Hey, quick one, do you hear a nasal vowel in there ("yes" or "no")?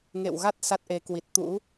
no